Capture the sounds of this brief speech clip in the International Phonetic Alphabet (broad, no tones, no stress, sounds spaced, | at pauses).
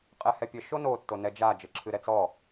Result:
qʼ ɛ h ɛ pʲ ɘ ʃ o n o tː o n ɛ d͡ʒ a d͡ʒ ɘ ǁʰ ɨ ɾ ɛ t͡s ɔ